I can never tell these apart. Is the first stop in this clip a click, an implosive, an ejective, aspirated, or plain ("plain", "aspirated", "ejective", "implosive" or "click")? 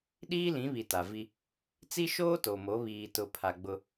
implosive